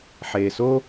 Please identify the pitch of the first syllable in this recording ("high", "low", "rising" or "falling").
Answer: low